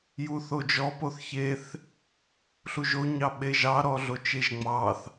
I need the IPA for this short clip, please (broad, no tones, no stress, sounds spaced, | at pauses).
j u θ o d͡ʒ ɔ p o θ ç e θ | ɬ u ʒ o ɲ ɑ ɓ e ʒ ɑ ɾ ɔ ɮ o t͡ʃ e ʒ ŋ͡m ɑ θ